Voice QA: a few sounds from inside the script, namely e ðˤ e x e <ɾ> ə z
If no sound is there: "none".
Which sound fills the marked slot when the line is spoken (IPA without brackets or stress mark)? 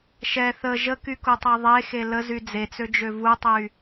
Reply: l